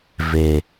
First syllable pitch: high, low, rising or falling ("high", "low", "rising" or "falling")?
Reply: low